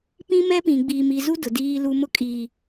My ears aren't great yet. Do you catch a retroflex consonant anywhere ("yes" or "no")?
no